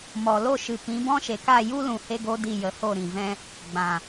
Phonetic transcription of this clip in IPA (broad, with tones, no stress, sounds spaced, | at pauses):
m ɔ˨ l o˦˨ ʃ ɨ˨ p ĩ˨˦ b ɔ̃˦ ʃ e˨ k a˦˨ j u˦ l ũ˨ h e˦ ɡ o˦ d i˦˨ j ə˨˦ h o˦˨ ɾ ĩ˨ v ɛ̃˦ | ɡ͡b ã˨